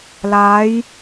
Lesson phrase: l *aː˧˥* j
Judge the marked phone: correct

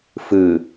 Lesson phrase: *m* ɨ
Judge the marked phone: incorrect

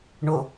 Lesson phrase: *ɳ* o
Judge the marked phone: correct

